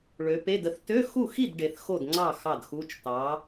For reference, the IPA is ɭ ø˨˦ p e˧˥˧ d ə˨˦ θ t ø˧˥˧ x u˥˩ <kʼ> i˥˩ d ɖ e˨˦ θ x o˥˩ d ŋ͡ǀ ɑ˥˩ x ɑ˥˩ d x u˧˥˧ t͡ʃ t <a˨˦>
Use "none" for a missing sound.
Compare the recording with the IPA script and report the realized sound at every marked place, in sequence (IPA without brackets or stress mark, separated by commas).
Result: x, ɑ˨˦